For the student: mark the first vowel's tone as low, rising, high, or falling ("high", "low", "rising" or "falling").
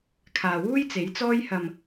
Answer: low